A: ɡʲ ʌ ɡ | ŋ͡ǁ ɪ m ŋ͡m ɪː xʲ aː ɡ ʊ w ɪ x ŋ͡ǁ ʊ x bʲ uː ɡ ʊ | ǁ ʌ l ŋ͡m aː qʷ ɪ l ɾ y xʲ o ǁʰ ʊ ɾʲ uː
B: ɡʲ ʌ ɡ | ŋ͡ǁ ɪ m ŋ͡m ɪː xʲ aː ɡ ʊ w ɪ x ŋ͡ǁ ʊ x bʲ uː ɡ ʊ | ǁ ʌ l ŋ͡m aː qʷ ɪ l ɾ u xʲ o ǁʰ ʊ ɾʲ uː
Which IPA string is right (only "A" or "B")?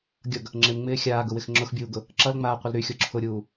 A